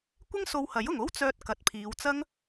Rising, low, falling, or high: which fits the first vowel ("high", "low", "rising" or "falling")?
high